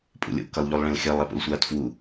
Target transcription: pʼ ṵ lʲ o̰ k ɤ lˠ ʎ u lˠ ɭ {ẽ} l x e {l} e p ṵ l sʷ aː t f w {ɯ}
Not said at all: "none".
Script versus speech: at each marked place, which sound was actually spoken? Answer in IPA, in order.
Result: ẽ, lˠ, u

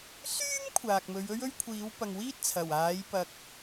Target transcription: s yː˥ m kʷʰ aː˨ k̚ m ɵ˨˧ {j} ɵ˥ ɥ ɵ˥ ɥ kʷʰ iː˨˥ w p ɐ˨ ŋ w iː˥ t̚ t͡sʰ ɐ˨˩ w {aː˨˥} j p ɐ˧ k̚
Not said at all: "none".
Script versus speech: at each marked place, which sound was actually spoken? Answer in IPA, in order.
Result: ɥ, aː˨˥

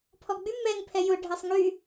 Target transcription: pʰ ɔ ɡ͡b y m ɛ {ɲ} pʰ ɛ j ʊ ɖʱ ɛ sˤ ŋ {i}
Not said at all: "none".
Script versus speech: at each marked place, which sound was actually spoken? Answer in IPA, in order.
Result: ŋ, y

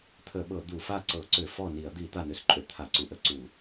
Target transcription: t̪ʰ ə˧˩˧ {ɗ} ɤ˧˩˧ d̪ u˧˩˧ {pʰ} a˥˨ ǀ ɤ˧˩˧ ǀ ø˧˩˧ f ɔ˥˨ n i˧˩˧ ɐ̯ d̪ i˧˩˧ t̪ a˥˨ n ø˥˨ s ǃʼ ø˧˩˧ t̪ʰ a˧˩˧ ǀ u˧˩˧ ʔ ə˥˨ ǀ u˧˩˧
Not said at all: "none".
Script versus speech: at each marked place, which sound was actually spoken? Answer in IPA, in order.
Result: ɓ, f

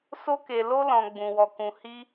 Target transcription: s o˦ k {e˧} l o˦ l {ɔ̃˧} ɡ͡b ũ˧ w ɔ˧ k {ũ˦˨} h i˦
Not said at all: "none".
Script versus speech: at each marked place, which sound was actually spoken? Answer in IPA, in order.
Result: e˧, ɔ̃˧, ũ˧

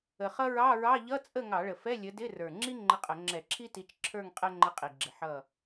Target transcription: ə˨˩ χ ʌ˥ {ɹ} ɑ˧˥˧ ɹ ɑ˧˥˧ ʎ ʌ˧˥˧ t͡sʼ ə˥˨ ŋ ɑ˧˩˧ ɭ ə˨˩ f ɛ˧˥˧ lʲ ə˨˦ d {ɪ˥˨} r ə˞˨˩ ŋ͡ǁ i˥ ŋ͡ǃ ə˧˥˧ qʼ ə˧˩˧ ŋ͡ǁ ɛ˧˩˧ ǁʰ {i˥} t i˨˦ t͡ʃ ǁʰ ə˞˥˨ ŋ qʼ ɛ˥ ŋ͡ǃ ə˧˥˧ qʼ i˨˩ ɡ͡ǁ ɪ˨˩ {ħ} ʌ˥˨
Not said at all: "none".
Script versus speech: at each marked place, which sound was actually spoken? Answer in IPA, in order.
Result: ɹ, ɪ˧˥˧, i˥, ħ

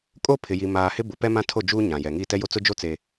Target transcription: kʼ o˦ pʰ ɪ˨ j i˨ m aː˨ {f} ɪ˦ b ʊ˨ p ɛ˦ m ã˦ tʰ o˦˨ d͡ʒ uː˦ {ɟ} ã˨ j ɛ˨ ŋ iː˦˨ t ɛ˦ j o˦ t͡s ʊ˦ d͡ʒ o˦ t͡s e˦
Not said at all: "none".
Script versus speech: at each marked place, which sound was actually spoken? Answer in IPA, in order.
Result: h, ɲ

